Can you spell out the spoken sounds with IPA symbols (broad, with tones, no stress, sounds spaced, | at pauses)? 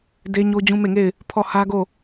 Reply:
d e˦ ɲ o˦ d͡ʑ ũ˦ m e˦˨ ŋ e˦˨ ɪ̯ | pʰ ɔ˦˨ h ä˦ ɡ o˦˨